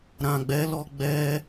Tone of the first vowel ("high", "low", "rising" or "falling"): low